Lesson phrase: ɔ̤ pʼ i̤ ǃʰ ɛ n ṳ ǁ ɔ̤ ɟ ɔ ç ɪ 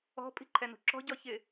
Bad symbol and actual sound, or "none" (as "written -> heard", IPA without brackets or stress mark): none